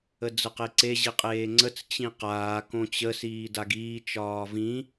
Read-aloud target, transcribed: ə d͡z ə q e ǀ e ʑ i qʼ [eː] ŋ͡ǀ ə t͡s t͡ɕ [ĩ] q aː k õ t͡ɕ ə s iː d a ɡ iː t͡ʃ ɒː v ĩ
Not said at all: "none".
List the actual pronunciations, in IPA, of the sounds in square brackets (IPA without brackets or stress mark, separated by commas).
eː, ĩ